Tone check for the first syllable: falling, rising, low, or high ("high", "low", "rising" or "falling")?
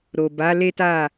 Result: low